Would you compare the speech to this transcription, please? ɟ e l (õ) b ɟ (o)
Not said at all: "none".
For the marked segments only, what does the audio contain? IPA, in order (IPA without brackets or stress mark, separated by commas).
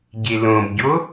õ, o